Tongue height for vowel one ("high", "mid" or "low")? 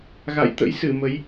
low